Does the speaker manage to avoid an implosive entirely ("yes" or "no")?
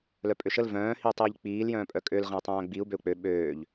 no